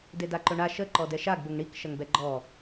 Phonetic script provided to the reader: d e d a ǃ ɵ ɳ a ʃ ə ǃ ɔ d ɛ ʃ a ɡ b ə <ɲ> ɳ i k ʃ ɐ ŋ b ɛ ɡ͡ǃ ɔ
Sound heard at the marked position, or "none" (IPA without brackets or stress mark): ŋ